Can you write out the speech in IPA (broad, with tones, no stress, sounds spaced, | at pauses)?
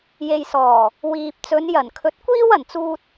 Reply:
j e˨ j s ɔː˨˩ | w iː˧ p̚ t͡s ɵ˨˧ n j ɐ˨˩ n kʰ ɵ˨˥ t̚ kʷ iː˥ w ɐ˨˩ n t͡s uː˥ t̚